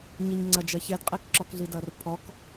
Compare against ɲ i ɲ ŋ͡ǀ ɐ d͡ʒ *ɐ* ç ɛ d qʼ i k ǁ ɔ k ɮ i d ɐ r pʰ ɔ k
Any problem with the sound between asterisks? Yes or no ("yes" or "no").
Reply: no